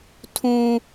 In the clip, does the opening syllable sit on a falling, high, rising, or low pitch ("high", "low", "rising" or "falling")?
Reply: high